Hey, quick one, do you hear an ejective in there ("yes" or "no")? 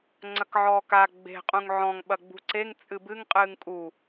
yes